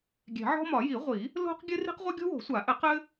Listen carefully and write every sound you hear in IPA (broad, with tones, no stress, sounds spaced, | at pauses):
ɡʲ ɛ̤˨˩˦ ʕ ɔ̤˥ m ɒ˨˩˦ j i˨˩˦ ʁʷ i˨˩˦ | l o̤˥ q ɡʲ ɘ˥ r i̤˥ q ʁʷ ɘ˥ ɡʲ o̤˥ w o̤˨˩˦ sʷ a˨˩˦ ʔ ɘ˨˩˦ q ɘ˥